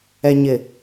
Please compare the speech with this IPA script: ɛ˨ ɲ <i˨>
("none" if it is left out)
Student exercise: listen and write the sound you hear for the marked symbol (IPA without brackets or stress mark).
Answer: ɪ˨